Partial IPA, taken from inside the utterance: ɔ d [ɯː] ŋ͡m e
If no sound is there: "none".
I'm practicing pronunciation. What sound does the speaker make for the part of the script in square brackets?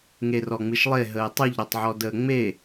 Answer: əː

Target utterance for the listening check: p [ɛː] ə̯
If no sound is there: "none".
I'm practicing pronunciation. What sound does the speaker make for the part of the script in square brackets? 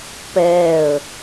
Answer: ɛː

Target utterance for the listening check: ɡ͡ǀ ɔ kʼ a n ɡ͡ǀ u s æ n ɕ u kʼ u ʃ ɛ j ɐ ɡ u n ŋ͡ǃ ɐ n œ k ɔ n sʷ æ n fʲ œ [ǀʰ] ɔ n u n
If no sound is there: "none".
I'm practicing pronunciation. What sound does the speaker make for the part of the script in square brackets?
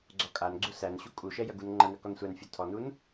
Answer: tʰ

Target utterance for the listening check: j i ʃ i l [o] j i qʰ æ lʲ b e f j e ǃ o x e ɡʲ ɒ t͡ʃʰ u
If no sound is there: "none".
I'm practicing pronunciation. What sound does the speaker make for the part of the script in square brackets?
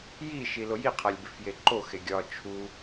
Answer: o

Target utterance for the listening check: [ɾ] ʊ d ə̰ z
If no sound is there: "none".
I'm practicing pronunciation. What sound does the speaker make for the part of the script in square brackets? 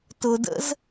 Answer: t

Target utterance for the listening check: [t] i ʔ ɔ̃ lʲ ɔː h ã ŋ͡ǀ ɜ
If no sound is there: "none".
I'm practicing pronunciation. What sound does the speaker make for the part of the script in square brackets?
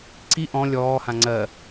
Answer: ǀ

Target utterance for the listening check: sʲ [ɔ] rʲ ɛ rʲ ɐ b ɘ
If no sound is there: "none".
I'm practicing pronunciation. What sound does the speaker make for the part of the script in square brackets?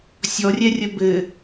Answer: ɔ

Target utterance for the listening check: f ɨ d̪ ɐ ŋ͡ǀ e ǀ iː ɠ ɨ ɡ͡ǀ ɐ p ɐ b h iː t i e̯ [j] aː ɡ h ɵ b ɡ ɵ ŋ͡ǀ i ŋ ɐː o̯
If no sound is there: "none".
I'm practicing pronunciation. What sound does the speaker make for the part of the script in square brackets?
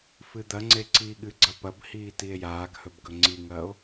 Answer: j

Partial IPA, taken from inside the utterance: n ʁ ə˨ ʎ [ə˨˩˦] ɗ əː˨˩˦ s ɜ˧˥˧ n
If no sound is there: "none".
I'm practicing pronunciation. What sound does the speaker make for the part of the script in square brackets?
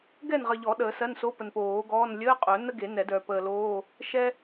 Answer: ɔ˨˩˦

